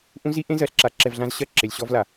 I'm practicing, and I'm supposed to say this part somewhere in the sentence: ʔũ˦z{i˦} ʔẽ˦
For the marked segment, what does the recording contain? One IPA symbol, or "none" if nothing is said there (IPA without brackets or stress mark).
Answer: i˦